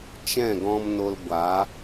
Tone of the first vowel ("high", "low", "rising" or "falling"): falling